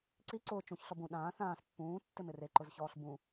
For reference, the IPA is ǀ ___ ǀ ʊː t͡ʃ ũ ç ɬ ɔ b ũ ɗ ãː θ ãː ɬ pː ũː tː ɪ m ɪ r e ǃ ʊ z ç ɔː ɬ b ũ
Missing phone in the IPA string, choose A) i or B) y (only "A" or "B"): A